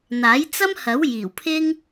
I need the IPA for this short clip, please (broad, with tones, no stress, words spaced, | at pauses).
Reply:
n̪aː˨˥jt͡sɐ˥m hɐ˨˥w jiː˨˩wpʰɪ˥ŋ